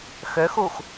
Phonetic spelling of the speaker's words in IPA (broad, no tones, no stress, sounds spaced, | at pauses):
x ø x uː x